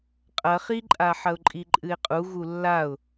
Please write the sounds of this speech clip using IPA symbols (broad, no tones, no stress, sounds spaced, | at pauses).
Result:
qʼ ɐ χ i ǃʼ a ħ ɐ ʊ̯ ǃʼ i ǃʼ ɨ ɪ̯ qʼ u ɣ u lː a ʊ̯